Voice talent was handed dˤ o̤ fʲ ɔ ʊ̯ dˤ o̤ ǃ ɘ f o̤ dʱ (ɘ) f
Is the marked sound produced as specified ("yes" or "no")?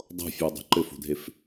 no